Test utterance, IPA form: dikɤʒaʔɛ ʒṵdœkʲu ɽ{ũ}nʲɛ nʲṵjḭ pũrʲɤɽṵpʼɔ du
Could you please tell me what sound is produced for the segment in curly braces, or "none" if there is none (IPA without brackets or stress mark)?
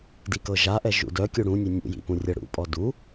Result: ũ